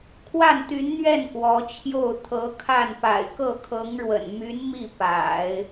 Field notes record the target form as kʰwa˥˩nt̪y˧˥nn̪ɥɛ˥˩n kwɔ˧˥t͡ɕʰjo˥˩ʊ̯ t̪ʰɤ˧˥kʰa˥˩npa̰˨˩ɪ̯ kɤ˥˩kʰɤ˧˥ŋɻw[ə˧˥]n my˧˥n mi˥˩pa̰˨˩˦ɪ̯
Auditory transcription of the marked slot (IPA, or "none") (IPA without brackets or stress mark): ə̰˨˩